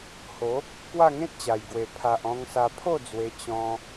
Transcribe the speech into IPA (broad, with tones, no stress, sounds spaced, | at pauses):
h o˨˦ | k w a˥˧ ŋ ẽ˦ t̚ t͡ɕ a˨˩ j ɡ w e˨˩ pʰ a˨ ʔ ɔ̃˧ ŋ s a˧ pʰ o˥˧ d͡z w e˧ t͡ɕ ɔ̃˧